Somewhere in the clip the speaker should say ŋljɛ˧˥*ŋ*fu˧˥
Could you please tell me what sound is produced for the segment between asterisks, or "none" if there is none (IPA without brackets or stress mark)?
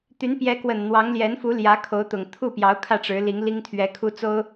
n